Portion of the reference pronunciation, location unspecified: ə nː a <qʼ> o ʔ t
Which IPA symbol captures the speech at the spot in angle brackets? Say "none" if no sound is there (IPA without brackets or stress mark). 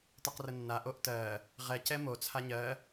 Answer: ʔ